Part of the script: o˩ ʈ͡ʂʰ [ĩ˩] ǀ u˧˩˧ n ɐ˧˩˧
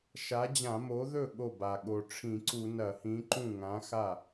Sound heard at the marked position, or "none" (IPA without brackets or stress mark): ĩ˧˩˧